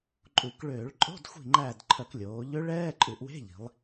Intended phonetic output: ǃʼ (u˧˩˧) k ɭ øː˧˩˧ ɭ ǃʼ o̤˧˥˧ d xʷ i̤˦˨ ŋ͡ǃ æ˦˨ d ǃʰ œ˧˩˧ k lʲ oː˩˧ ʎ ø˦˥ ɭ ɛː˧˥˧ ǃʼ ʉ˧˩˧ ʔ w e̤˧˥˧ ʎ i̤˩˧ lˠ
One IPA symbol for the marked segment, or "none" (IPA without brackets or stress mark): u˧˩˧